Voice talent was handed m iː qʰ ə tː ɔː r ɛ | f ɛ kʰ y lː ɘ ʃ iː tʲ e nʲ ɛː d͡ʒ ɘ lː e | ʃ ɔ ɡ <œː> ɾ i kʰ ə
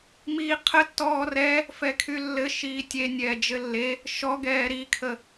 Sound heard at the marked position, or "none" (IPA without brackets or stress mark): ɛː